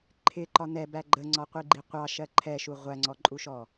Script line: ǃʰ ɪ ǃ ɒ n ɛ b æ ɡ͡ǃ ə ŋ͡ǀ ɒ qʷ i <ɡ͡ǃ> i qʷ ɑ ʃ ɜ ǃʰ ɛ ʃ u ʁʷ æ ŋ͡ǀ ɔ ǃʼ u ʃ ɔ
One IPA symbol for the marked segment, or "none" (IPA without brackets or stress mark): ɡ͡ǃ